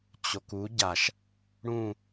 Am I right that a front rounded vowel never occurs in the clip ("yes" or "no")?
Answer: yes